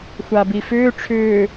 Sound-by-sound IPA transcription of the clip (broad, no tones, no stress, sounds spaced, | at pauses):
xʷ a b i f ʏː ʈ͡ʂʰ ʏː